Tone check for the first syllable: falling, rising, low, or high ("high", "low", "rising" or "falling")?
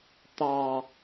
low